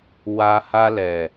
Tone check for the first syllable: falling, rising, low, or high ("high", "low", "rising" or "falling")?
low